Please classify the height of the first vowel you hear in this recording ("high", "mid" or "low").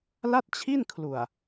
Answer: low